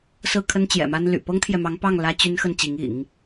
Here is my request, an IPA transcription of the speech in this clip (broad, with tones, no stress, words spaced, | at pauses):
sɹ̩˥˩kʰə˥n t͡ɕjɛ̰˨˩ma˥nly̰˨˩ pɤ˥ŋt̪ʰjɛ˨mɑ˧˥ŋpɑ˥˩ŋ lä˥t͡ɕy˥nxə˥˩n t͡ɕi˧˥ŋḭ˨˩˦ŋ